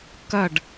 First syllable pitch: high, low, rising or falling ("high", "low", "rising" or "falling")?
falling